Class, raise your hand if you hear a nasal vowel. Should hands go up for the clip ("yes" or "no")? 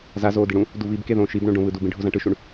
yes